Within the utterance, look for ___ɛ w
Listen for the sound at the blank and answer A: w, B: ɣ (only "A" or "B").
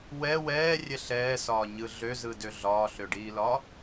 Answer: A